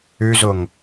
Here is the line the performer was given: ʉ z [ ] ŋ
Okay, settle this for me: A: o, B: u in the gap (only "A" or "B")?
A